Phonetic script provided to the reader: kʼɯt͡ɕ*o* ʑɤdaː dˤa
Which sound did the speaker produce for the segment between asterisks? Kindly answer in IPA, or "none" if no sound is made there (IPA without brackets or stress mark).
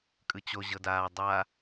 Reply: o